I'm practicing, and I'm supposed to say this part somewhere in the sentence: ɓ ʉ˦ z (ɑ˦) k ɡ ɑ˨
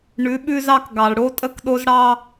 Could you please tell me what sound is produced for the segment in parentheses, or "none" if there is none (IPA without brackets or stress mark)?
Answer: ɑ˦